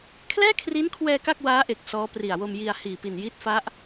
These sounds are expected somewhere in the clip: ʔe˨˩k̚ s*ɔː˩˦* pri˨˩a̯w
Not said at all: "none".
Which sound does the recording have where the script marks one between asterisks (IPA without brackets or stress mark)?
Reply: ɔː˦˥